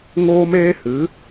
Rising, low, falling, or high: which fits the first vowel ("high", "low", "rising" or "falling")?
high